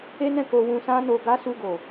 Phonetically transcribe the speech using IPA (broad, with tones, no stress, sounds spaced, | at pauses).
e˦ n ɛ̃˦˨ k o˧ w ũ˧ s ã˦ n o˧ ɡ a˦ s u˧ ɡ o˨